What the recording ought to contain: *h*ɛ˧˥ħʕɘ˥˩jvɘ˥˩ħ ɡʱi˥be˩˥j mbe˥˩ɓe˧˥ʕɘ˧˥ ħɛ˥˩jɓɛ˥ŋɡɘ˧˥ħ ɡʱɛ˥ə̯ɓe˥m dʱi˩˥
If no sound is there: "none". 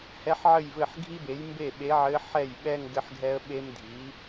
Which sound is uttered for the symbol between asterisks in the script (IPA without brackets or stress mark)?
h